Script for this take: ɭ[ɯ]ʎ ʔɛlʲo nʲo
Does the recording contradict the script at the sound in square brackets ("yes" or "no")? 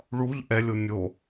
yes